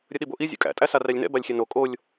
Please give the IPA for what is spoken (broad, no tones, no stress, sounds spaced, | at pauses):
ɾʲ ə ɗ i b o ʔ i zʲ ṵ kʼ æ̰ tʼ æ s a r æ lʲ n ɛ̰ b a lʲ xʲ ɛ n o kʼ o lʲ